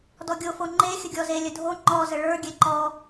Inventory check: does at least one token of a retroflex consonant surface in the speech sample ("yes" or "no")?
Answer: yes